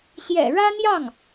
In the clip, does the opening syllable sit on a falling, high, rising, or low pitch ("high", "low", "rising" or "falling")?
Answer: low